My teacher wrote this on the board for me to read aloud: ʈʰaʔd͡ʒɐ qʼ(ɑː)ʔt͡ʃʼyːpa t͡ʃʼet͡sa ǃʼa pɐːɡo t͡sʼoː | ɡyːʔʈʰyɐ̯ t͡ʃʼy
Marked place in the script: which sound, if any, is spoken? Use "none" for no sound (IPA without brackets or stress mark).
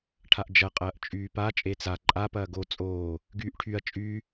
ɐː